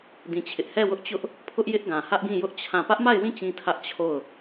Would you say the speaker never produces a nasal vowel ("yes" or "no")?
no